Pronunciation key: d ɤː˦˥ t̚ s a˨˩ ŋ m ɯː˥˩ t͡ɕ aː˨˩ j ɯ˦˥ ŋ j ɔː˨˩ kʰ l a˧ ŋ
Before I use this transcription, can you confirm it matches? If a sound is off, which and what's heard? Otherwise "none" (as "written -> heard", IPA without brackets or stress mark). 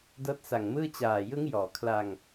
none